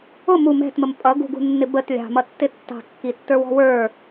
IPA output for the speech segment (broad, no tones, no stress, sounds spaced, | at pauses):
ʊ m u m ɛ̤ t m ə m pʼ ʌ ɡ ṳ ɡ ṳ nː ɪ b ə t lʲ ɑ̤ m ʌ tː ɪ tː ɑ̤ kː i tː ə˞ w ɔ̤ w ə˞